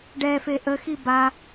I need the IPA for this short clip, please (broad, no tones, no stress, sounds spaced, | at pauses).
ɖ ɛ f e ʔ ə x i b a